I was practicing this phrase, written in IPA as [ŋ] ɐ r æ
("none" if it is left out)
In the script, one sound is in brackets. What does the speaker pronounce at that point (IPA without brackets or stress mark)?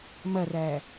m